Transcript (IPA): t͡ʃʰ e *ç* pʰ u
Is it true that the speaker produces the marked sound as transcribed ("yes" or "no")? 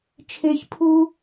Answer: yes